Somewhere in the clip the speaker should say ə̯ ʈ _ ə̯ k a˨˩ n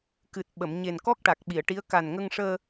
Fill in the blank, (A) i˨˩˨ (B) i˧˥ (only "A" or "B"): B